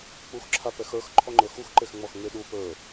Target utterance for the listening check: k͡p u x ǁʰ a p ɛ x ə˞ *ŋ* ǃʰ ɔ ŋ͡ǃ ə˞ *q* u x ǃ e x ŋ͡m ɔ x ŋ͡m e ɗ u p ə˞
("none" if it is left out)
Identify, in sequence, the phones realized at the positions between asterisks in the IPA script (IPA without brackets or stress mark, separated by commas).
x, x